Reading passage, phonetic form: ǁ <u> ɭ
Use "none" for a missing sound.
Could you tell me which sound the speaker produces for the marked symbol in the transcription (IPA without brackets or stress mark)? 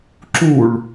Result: u